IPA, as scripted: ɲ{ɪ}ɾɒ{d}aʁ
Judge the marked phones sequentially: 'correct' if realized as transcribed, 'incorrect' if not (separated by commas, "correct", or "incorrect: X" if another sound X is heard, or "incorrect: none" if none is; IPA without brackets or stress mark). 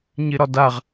correct, correct